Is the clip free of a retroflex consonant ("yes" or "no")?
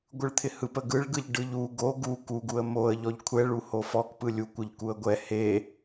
no